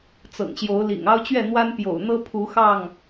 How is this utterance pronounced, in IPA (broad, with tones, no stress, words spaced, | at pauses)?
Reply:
t͡sɤ̰˨˩ŋɕjo˨˦ʊ̯lḭ˨˩ŋ ɑ˦ʊ̯t͡ɕɥɛ˥˨n̪wa˦n pjo̰˨˩ʊ̯n̪ɤ˦ pʰu˨˦xɑ˥˨ŋ